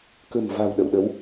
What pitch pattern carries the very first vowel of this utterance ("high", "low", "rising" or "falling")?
low